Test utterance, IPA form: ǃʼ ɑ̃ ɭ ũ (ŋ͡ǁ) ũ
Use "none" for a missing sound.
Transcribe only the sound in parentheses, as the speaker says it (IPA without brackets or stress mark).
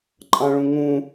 ŋ